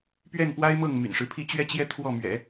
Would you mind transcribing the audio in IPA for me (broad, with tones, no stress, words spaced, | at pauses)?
pɥɛ˥˩npwa˥ɪ̯mɤ˥˩ŋ my̰˨˩nʂɻ̩˦pʰi˥˧ t͡ɕɥɛ˥˧t͡ɕjɛ˥˧ t̪ʰwɔ˥˩ mɥɛ̰˨˩˦